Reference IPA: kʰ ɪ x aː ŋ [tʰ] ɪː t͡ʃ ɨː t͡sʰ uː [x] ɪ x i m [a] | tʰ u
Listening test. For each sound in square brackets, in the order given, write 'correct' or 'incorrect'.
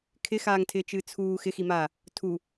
correct, correct, incorrect: aː

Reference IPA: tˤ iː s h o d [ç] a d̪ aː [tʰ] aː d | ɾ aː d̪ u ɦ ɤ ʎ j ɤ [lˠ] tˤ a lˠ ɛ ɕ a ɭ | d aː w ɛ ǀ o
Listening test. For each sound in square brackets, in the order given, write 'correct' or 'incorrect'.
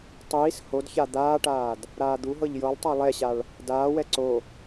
correct, incorrect: ʈ, correct

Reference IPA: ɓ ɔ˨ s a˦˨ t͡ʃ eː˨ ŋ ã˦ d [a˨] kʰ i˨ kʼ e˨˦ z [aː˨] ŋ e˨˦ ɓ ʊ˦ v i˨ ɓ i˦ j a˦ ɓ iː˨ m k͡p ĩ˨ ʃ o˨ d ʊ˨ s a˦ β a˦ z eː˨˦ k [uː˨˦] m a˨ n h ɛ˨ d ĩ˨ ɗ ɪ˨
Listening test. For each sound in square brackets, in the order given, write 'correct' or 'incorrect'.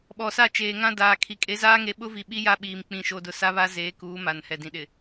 incorrect: aː˨, incorrect: aː˦, correct

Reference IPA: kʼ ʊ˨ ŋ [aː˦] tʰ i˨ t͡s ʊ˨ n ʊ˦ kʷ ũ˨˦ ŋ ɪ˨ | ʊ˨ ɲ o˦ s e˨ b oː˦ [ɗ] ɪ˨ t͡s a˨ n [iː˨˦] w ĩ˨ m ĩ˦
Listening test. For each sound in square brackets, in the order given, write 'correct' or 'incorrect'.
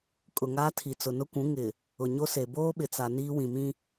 correct, incorrect: ɓ, incorrect: iː˦

